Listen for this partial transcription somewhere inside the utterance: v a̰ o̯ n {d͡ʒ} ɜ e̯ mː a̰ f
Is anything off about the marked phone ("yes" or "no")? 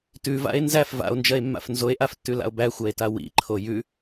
no